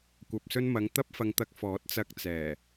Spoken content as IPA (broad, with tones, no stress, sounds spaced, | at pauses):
kʷ ɐ˨ p̚ s ɵ˧ n m ɐ˨˧ ŋ t̪ ɐ˥ p̚ f ɐ˧ ŋ t̪ ɐ˧ k̚ f ɔː˨˥ t̚ t͡s ɐ˧ k̚ t͡s ɛː˨˩